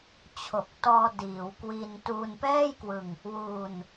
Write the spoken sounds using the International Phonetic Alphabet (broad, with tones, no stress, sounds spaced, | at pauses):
t͡ɕʰ o˨˩ k̚ t ɔː˧ d iː˩˦ w k w i˧ n t uː˧ n p ɛː˥˩ j k w ɯ˧ ŋ | w u˧ n